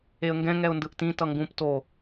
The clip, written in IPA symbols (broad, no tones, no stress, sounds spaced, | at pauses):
e ə̯ ŋ ɡ ɛ̃ ŋ ɛ ʊ̯ n d ɯ ʔ t ĩ t ʌ ŋ ɡ ũ p t o